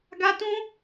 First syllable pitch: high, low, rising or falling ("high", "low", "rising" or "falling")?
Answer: high